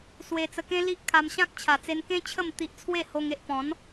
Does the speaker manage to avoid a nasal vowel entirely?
no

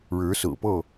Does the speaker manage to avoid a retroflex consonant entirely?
no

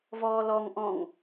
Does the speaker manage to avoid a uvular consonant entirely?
yes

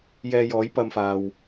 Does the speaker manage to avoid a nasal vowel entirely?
yes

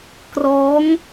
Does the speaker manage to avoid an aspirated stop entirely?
yes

